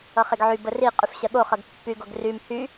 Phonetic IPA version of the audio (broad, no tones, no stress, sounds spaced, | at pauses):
ʌ χ e ɡ ʕ y b ə r i qʼ y f ɕ ɜ ɠ o χ ʌ ɡ pː y ɡ o ɡ r y m h y